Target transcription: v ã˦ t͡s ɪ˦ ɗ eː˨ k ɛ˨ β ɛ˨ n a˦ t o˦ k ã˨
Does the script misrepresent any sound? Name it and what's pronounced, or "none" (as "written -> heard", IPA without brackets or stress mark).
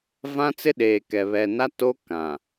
none